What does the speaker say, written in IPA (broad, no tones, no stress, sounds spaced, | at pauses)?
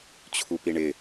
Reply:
t͡ɕʰ u p i ɳ ɪ